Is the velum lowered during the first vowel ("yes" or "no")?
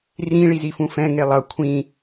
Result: yes